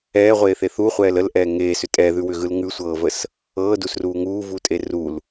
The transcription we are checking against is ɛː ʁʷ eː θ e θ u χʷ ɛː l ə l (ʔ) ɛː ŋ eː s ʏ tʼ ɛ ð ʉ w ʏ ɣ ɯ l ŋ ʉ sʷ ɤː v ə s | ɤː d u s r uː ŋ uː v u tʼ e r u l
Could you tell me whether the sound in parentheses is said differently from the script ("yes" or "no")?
no